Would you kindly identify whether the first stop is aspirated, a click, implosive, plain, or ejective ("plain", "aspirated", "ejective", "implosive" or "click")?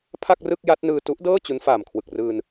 aspirated